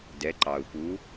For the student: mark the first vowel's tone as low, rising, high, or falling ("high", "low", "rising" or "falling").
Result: rising